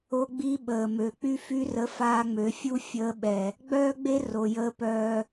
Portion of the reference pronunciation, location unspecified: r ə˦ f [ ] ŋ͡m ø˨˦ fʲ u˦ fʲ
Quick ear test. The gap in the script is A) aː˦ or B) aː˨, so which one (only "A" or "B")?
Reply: A